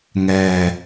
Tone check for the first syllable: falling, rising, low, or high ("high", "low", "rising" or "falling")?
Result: low